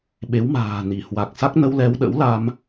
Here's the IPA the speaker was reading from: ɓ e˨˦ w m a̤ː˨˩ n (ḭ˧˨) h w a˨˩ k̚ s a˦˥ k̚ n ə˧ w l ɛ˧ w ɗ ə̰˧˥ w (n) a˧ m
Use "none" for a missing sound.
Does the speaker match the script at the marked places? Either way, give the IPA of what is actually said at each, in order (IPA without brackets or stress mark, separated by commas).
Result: i˧˩, l